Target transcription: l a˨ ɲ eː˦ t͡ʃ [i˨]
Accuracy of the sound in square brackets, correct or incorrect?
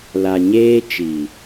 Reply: correct